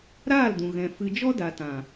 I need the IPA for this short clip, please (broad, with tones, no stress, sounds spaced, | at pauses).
ɾ aː˦˨ l d ũ˨ ɣ ɛ̃˨ f ɨ˧ d͡ʒ ɔ˦ d a˨ t ã˨